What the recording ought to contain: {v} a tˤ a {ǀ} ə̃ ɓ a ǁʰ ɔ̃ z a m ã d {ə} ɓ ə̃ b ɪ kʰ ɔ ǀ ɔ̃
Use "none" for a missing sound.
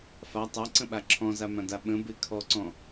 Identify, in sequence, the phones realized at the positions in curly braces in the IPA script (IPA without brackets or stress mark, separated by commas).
f, ǀ, a